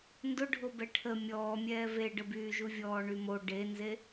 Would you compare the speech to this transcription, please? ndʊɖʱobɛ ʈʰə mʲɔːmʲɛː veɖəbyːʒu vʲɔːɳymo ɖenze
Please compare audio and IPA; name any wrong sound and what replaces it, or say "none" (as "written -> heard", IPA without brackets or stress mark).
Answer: none